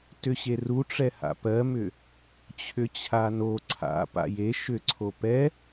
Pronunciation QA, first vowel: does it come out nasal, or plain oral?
oral